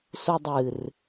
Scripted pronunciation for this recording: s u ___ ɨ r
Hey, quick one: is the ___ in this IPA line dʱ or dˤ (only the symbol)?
dˤ